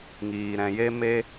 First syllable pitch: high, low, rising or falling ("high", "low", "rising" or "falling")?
low